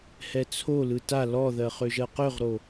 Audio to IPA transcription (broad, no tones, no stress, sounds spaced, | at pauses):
h ɛ t͡sʰ o l ɯ t a l ɔ ð ɜ χ ø ʒ ɜ q ø ʁ ɾ o